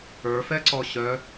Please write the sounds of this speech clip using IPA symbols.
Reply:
ə˞ f ɛ ǀ ɔ ɕ œ

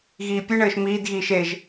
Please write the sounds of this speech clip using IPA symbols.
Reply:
ɣ iː pʲ ɨ ɳ ɘː ʃ m iː d ɣ iː ʃ e ʒ

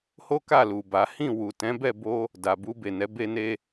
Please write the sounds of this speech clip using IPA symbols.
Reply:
h o˦ k a˦˨ l u˨ b a˨˦ h ĩ˦˨ w u˨ t ɛ̃˨˦ b ɛ˦˨ b o˧ | d a˨ b u˧ b e˨ n ɛ˨˦ b e˧ n e˧

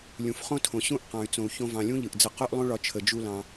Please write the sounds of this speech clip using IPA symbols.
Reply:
lʲ ũ˩ f χ õ˥ tʰ õ˩ ɕ ũ˥ ʔ q ɑ̃˩ y̯ t͡s õ˩ u̯ ç õ˧ v ɑ̃˩ lʲ ũ˥ ʎ ɯ˩ ʔ d͡z ə˧ q o˥ ʔ lˠ õ˥ ɭ ɒ˧ t͡ʃʰ ə˩ d͡ʒ u˧ l ɑ̃˩

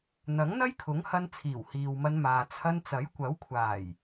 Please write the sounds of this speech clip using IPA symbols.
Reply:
n̪ ɐ˨˥ ŋ n̪ ɐ˥ j kʰ ʊ˨˥ ŋ h ɐ˧ n t͡sʰ iː˨˩ w h iː˨ w m ɐ˧ n m aː˨ t͡sʰ ɐ˧ n t͡s ɐ˨˥ j kʷ ɐ˨˥ w kʷʰ aː˨˩ j

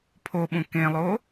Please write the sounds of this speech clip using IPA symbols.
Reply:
pʰ o ɓ ũ k ẽ lˠ o

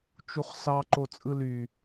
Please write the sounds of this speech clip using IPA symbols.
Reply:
t͡ʃ u χ s ɑ ǃ o t͡sʼ ɯ l y

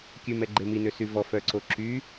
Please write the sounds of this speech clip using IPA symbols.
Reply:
kʲ ʉ m ɛ ɡ͡ǃ e m i n ø s y v ɔ f œ ǀ o ǁ y

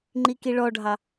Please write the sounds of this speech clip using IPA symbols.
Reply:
ŋ͡ǃ i k i ɭ ɔ ɖʱ ɑ

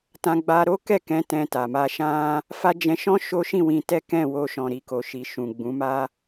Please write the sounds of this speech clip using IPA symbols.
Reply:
t ã˧ ɡ͡b a˧ ɾ o˦ k ɛ˦˨ k ɛ̃˨˦ t ɛ̃˧ t a˨ m a˧ ʃ ã˦ | f a˦ d͡ʒ ɛ̃˧ ʃ ɔ̃˦ ʃ o˦ ʃ ĩ˦˨ w ĩ˧ t ɛ˦ k ɛ̃˦˨ w o˧ ʃ ɔ̃˨ ɾ i˨ k o˨ ʃ i˨ ʃ ũ˨ ɡ͡b ũ˨˦ m a˦

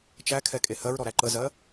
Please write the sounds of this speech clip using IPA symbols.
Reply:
t͡ʃ æ kʰ ɛ kʼ e h ɜ ɹ ɾ ɔ ɾ æ ǃ ə z ɜ

